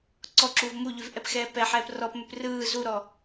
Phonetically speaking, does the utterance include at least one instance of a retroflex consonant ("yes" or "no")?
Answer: no